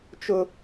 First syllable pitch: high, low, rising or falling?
high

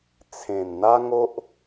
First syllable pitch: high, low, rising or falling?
low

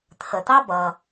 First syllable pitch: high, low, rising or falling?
low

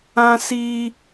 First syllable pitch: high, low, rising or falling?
high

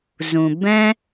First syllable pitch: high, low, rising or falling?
low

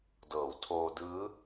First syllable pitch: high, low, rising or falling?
low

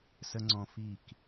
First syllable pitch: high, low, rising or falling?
high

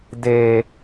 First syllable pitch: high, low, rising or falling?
low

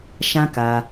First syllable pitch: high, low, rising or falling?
high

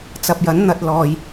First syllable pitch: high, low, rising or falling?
low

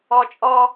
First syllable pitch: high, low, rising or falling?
high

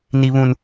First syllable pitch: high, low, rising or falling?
high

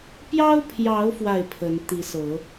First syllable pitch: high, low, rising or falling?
high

